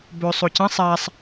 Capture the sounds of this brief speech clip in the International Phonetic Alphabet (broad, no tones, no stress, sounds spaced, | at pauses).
b ɵ sˤ o c ɐ̃ sˤ a sˤ